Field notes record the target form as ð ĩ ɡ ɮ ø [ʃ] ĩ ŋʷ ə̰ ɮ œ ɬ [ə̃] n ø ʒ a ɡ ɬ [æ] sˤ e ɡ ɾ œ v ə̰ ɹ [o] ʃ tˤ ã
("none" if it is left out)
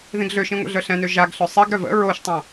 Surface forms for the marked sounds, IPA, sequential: ʃ, ɛ̃, œ, o

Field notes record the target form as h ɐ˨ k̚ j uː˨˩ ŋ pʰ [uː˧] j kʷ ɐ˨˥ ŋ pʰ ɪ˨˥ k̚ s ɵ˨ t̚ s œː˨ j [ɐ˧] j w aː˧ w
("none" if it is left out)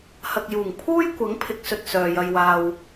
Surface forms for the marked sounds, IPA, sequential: uː˥, ɐ˧

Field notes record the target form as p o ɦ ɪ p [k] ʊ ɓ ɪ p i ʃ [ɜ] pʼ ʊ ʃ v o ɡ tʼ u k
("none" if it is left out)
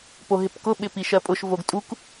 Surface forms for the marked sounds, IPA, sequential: k, ɜ

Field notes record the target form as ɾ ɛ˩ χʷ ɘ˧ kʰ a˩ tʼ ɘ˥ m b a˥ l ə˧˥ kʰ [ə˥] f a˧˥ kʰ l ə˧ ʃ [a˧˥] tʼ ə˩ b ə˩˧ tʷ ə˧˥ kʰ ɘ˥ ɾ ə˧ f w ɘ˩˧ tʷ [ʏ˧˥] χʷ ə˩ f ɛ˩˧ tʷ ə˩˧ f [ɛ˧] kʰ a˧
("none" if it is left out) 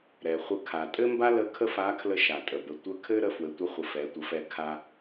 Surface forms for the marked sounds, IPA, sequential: ə˥, a˩, ə˧˥, ɛ˧

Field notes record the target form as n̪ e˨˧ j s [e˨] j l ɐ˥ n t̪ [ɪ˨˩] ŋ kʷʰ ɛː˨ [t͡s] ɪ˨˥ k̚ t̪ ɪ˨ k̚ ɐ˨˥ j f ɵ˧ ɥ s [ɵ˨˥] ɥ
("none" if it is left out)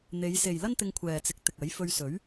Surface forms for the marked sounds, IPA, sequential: e˨, ɪ˧, t͡s, ɵ˨˥

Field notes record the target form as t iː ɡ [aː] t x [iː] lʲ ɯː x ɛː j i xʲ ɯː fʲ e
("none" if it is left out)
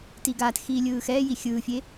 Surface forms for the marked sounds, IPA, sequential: aː, iː

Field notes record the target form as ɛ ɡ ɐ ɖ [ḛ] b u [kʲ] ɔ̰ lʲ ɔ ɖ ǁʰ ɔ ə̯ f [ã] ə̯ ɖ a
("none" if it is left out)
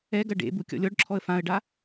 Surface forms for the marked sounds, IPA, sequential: ḛ, kʲ, ã

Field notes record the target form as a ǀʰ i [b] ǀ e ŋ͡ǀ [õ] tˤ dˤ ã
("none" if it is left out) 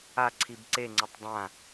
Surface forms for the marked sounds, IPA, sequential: b, o

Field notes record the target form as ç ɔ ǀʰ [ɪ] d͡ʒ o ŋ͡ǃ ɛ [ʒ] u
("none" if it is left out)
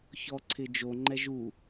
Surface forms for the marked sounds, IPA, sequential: ɪ, ʒ

